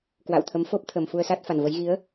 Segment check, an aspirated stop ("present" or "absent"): present